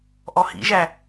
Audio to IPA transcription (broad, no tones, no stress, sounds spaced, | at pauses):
ʔ ɔ h ḭ ʒ æ